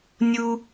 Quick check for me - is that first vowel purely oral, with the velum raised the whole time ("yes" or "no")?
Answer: yes